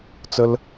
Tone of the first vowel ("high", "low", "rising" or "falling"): high